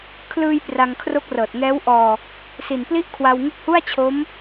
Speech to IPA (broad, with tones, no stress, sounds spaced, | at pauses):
kʰ l ɯː˧ j p r a˧ ŋ kʰ r o˦˥ k̚ r ɤː˨˩ t̚ ŋ ɛː˦˥ w ʔ ɔː˧ | s i˨˩ n p l i˥˩ ʔ kʰ w a˧ w ŋ u˥˩ k̚ h u˥˩ a̯ t͡ɕʰ o˦˥ m